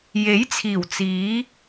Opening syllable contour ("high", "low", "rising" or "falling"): rising